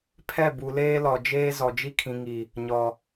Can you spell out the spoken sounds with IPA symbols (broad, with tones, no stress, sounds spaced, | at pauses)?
pʰ ɛ˦˨ b u˨ l eː˦ l ɔ˨ d͡ʒ eː˦ z ɔ˨ d͡ʒ i˦ kʰ ĩ˨ ŋ i˨ | ɲ ɔ˨